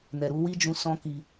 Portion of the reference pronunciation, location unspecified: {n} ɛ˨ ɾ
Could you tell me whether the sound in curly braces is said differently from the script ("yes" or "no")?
no